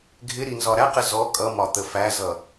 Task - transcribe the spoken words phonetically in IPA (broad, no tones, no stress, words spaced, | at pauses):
ɡʱɪɾi nzɒɾæqɪ zɔ kʼʌmɒ t̪əfæzʌ